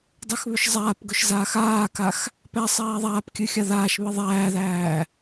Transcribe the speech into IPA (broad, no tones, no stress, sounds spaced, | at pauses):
dˤ ɨ x β ʏ ʃ zˤ aː p ɡ ʊ ʃ z aː x aː k a x | p æ sˤ æː ðˤ aː p kʲ ɨ xʲ a ð aː ʃ β ɨ ðˤ æː ð æː